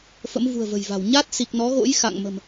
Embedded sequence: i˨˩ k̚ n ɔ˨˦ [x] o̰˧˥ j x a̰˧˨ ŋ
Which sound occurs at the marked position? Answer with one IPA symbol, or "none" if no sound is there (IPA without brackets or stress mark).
ɣ